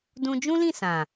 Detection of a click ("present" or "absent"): absent